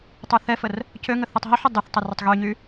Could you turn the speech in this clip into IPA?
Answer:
tˤ œ θ ɛ f ə r | c ø ŋ ə θ ɛ tˤ ɦ ɔ ħ ʏ dˤ ɪ θ tˤ ə r ʏ tˤ ɣ y ɲ y

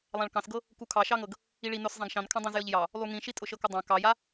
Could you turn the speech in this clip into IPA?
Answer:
lˠ ã ɭ k ɑ̃ s ɡ ɤ | k u kʰ ɑ ʃ ɑ ŋ ɤ ɡ | i ɭ i n ʊ s zˤ ã ɡ ʃ ɑ̃ n kʰ ã dˤ ĩ z j ɤ ʎ j ɑ | lˠ u ŋ ĩ ʃ i tʼ ʊ ʃ ɤ k ʊ dˤ ã k ɑ j a

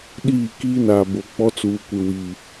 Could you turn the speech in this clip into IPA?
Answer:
ɗ iː˦˨ k iː˦ n a˨ b o˨ k͡p ɔ˦ t͡s uː˨ kʷ ɪ˨ w i˨

